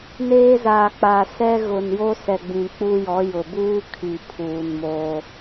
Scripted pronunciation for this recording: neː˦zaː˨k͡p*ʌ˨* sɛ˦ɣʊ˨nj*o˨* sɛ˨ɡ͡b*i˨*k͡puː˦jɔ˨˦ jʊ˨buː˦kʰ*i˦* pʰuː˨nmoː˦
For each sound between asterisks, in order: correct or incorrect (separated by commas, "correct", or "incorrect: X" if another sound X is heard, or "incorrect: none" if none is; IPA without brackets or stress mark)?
incorrect: a˨, incorrect: o˦, incorrect: ĩ˨, incorrect: i˨